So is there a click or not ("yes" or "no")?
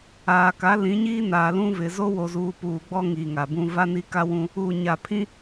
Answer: no